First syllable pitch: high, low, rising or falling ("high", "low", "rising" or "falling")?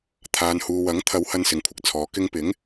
low